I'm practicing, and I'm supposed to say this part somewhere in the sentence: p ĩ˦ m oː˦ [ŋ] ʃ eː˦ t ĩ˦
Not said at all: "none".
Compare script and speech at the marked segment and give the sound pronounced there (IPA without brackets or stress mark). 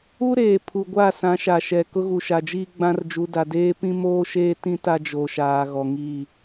none